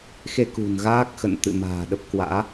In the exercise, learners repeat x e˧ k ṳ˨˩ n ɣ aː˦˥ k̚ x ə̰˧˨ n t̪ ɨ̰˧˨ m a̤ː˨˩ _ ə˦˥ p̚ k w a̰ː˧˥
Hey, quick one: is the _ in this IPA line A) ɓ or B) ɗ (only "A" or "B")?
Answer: B